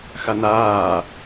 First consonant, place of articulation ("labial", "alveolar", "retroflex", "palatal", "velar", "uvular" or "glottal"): velar